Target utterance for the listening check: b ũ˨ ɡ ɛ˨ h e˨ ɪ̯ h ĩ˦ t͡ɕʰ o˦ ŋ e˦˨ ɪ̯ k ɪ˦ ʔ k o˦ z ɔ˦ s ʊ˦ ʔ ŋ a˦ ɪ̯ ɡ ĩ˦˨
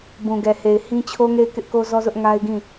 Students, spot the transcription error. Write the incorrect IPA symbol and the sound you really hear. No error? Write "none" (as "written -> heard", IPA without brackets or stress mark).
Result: s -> z